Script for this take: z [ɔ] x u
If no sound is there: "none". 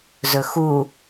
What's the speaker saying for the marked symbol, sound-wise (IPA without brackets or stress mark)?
ɵ